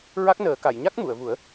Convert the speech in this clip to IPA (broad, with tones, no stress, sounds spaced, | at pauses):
ɹ a˦˥ k̚ n əː˨˩˦ k a˨˩˨ j ɲ a˦˥ k̚ m u˨˩˨ ə̯ v u˨˩˦ ə̯